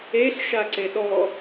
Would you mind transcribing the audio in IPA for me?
e ɬ ʃ a ǀ e ɗ ɔ

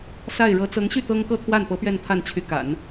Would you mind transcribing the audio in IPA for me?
s a˥˩ ɪ̯ ɻ ɤ˧˥ t͡s ɤ˧˥ ŋ ɕ y˥˩ t̪ ɤ˥ ŋ k ɤ˥˧ t̪ʰ w a˥˩ n p ɤ˧˥ p ɥ ɛ˥˧ n t̪ʰ a˥˩ n t͡ɕʰ y˧˥ k a̰˨˩˦ n

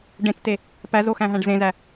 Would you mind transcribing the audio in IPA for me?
ɖ ẽ t͡s t e | p æ z o x æ̃ ɦ æ̃ ɖ z ẽ z æ

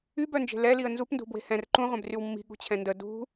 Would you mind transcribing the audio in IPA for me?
y b œ n d͡ʒ e̤ l ɛ l i ə̯ n z u p n d ṳ b w e̤ h ɛ̃ r ǃ ũ ʁʷ ɛ̃ b r y w mː i̤ ɠ ṳ t͡ɕʰ ɛ̃ n d ə d ṳ

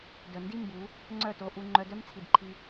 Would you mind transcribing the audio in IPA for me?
d œ˨ n d i˦ m b u˨˦ | ŋ͡ǀ œ˦˨ t o˧ ʔ u˧ ŋ͡ǃ œ˧ d œ˦ m t͡sʰ i˨ d ǃʰ i˧

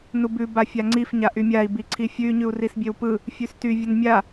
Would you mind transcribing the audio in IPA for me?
n u b ʉ b a fʲ a ŋ͡ǀ i f ɲ a ʔ y mʲ a i̯ b i ǀʰ i fʲ ʉ y̯ ɲ ʉ u̯ r i s bʲ e w p ɯ | fʲ ʉ s t y vʲ ə n mʲ a

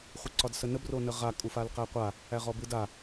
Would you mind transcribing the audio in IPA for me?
χʷ ə ǀ ɒ d s ə n ə b r o n ə ʁ a kʼ u f a l q æ qʷ a | æ ʁ ɔ b ɯ d a

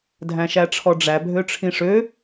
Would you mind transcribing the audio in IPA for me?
dʱ æ̃ ʃ æ ʈ͡ʂʰ ɔ ɖ͡ʐ æ bʱ ø ʈ͡ʂʰ ĩ ʂ ø

